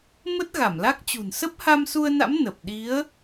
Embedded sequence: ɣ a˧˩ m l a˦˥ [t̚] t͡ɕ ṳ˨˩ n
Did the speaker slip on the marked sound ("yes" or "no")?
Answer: yes